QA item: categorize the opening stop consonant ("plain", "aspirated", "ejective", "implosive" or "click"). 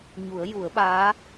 implosive